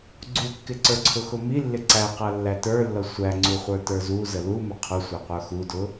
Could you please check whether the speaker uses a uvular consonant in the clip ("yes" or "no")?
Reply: yes